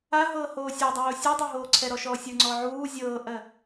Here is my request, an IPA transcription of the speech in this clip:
aɦɤː hoːsʲadˤoː sʲɤdˤɤɦoː ǀʰɛɾɔʃɔːsʲə˞ ŋ͡ǀɔʕuː zʲɤːʔɜ

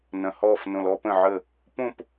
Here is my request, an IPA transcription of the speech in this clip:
nɐ̃˩hɔː˧˩f nõ˩lɔ˥˧ pə̃˧˩ʕə˧˩ | põ˥˧p

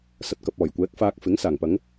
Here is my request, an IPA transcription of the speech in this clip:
sɐ˨t̚kɐ˨p̚ ɔː˨˩jkʷɛː˨˥k̚faː˧k̚fɪ˨˥ŋ saː˨˩ŋpɐ˨˧ŋ

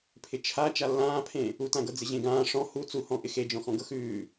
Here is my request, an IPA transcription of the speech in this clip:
pʰɪt͡ʃʰa t͡ʃalːãːpʰẽ | utãɡɤ d͡zɪʑẽɡãː ʂɔ̃ hu t͡suhɔ̃ ʔɪxed͡ʒɔ̃xɔ̃ ɡɤxʉː

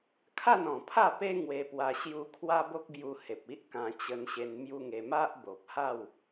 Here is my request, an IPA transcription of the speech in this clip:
kʰa˥˧nɔ̃˨˩pʰa˥˧pe˦ ŋwe˧pwa˧ ɕju˧kʰwa˦ bo˦k̚bju˧ he˨p̚i˦ʔkã˧ t͡ɕə˧nɕe˧n mju˦ŋe˧ ma˦ʔbo˨p̚ha˥˧w

